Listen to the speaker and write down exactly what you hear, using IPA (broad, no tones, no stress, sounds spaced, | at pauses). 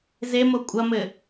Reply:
z e m o kʷʼ ɐ m ɘ